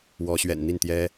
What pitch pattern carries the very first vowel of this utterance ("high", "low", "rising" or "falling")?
rising